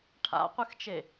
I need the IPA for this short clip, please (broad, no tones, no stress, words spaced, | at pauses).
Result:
ʈʰa̰qʷɨxt͡ʃe